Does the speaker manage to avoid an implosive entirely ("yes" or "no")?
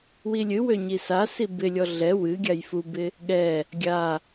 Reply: no